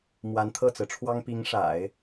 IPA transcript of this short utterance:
mwa˧˥nt̪ʰɤ˥˩t͡sɹ̩˩ʈ͡ʂʰwɑ˥ŋ pi˧˥ŋʂa̰˨˩˦ɪ̯

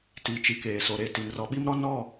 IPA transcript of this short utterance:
ti˨t͡ʃi˨ keː˨so˨ɾe˨ ti˨nrɔ˨˦ɓi˦mɾɔ˦ nɔ˦˨

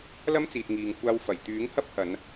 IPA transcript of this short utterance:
lɐ˥mt͡siː˨t̚ ŋiː˨ŋkʷʰaː˧w fɐ˨˩jt̪yː˨˥ŋhɐ˥p̚ hɐ˨˧n

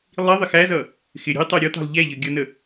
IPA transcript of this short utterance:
lˠi ðˤɪxæzʌ | xɪ ɾʲə̤i̯tˤæ ɾʲɔtɑ̤lˠ ʎæʎʌ ɡʲʌnə

